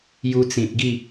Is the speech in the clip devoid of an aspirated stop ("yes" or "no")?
yes